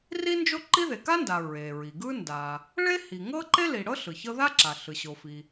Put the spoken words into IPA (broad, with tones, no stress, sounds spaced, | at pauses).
r i˥ n d͡ʒ o˥ ǃ i˥ ð e˩ k a˥ n d a˩ ɹ e˩ ɹ i˩ ɡ ɯ˥ n d a˩ | ɭ e˥ h i˩ ŋ ɤ˥ ǃ e˥ l i˩ ɽ ɤ˥ ɬ ɯ˩ ç ɤ˥ ð a˥ ǁ a˩ ɬ ɯ˩ ɕ o˩ f i˩